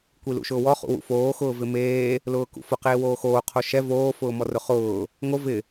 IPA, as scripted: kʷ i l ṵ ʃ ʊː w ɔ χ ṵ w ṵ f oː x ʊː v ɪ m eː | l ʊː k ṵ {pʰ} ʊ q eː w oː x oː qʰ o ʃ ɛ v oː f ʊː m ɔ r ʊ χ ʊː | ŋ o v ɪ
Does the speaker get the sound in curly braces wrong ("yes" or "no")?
yes